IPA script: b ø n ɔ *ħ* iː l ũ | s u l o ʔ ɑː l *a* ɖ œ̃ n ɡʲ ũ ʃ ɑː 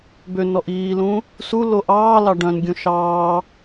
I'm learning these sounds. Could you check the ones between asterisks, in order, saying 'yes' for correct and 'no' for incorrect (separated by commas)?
no, no